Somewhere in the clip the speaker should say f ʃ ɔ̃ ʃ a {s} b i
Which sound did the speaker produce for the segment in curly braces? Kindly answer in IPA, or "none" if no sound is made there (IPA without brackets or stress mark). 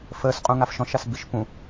s